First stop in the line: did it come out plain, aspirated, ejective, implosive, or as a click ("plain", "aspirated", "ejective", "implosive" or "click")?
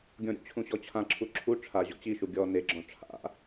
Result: plain